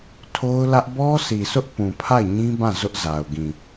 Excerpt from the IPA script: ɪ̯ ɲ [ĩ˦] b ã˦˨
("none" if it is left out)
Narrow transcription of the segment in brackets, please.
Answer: ĩ˦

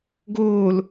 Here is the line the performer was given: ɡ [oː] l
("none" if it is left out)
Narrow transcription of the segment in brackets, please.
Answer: oː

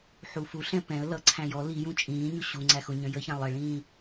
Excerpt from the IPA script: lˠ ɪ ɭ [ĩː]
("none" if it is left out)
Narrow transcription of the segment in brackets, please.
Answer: ĩː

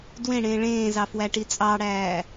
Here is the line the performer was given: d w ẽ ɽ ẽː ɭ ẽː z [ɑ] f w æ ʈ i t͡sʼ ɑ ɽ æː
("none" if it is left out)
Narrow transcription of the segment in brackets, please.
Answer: ɑ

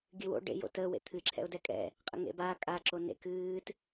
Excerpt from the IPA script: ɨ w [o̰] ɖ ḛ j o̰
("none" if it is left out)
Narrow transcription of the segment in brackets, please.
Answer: o̰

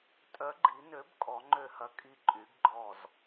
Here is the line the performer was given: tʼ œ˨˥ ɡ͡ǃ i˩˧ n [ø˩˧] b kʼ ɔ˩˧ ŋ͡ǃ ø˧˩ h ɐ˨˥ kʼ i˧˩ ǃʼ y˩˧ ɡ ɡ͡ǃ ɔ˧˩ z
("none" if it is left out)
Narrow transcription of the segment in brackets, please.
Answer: ø˨˥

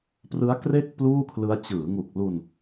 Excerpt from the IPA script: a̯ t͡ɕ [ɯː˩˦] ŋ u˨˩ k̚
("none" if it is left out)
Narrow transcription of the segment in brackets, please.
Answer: ɯː˩˦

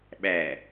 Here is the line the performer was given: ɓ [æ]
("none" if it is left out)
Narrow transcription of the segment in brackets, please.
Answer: æ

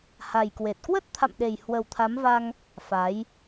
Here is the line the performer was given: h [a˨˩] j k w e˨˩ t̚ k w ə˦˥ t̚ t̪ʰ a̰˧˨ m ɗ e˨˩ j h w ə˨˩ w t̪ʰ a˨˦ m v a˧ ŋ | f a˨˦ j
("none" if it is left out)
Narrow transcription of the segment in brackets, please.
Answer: a˨˩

